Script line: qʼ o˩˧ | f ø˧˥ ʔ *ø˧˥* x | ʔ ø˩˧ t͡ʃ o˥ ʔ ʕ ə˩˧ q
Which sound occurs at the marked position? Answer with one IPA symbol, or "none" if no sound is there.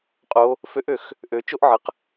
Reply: ø˩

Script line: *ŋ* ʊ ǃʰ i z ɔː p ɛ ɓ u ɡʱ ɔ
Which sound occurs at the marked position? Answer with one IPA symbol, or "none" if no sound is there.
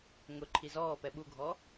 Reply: ŋ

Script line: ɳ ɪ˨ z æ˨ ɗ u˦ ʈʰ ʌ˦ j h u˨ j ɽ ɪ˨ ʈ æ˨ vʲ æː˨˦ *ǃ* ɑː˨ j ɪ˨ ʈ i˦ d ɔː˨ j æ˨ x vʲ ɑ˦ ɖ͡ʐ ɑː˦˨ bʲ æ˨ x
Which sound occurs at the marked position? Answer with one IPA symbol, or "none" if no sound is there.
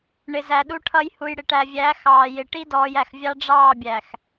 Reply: x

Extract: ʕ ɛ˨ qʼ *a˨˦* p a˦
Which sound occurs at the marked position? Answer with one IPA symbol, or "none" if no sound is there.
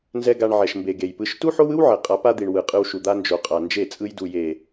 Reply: a˨˦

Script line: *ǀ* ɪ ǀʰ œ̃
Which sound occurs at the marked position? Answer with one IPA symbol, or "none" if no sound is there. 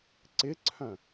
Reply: ǀ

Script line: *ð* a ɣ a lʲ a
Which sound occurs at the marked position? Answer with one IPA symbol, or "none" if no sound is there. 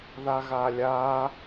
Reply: ð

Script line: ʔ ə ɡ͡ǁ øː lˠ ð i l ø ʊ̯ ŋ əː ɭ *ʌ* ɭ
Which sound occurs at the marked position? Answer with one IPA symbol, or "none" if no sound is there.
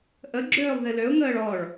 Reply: ɔ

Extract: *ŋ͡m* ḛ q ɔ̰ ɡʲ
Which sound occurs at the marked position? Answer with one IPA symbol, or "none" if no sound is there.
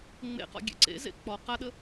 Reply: ŋ͡m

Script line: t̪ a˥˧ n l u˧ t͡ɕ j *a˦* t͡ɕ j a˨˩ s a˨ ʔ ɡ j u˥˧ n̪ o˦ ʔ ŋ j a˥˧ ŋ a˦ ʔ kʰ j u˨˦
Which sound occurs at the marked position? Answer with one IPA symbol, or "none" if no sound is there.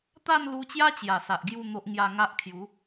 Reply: a˦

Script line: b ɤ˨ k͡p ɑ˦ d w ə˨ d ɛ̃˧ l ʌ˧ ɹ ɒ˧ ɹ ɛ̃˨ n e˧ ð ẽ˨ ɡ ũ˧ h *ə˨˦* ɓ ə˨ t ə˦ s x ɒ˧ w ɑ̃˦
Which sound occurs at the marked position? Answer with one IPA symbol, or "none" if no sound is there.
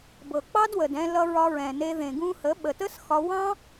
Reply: ə˨˦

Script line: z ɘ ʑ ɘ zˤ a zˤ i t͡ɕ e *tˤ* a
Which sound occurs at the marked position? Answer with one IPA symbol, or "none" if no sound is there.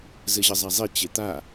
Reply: t̪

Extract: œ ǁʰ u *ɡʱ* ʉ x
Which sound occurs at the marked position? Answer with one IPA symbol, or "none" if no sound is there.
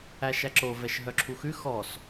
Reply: x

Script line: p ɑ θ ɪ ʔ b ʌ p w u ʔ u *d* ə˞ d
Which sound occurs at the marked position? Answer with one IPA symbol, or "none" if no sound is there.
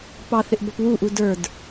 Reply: d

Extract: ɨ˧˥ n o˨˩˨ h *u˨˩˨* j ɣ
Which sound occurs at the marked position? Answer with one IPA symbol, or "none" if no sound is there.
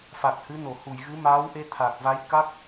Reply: u˨˩˨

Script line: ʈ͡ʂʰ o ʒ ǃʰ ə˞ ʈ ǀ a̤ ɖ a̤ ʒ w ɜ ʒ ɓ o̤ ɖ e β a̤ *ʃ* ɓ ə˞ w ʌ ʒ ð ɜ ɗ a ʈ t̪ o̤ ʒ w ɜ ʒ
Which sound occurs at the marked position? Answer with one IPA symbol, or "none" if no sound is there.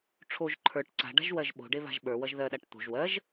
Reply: ʒ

